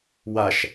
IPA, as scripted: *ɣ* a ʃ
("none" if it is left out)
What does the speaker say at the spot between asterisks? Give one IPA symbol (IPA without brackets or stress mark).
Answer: w